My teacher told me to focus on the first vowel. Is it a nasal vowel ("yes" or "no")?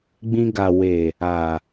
yes